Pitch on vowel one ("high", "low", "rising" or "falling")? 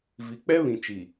low